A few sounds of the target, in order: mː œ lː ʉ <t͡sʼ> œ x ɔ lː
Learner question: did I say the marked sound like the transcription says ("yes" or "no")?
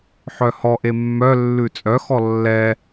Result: yes